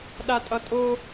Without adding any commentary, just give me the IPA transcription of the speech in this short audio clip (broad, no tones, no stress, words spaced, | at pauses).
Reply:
ɗatʼʌtʼo